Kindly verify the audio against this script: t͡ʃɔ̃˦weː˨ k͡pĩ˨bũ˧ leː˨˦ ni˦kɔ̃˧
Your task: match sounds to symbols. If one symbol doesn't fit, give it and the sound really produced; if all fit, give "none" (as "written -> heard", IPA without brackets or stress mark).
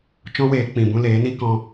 none